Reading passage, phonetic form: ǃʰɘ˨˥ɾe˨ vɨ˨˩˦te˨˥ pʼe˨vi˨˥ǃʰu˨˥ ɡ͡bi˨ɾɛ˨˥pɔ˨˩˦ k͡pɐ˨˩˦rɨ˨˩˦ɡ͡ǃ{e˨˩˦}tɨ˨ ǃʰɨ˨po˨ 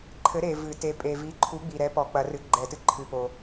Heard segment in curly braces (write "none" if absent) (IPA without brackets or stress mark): ɛ˨˩˦